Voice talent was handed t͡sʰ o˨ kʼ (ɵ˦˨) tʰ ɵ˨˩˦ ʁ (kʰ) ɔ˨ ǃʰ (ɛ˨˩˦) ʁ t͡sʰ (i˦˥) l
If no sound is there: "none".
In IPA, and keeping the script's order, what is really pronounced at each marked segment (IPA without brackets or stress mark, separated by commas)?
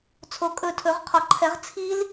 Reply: ɵ˦˨, qʰ, ɛ˨˩˦, i˦˥